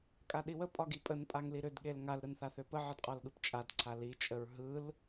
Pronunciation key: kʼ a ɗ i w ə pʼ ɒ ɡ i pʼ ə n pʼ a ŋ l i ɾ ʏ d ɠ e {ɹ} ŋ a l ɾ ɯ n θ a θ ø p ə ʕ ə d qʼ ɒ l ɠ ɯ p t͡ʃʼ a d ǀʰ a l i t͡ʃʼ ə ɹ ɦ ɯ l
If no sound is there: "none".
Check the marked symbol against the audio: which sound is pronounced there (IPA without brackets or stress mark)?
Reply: l